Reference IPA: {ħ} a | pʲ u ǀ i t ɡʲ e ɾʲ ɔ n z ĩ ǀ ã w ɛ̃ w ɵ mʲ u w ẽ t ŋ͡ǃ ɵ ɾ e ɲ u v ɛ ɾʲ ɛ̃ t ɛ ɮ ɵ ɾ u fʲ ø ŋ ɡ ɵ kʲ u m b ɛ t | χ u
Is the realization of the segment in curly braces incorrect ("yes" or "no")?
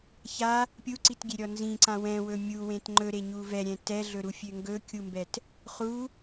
yes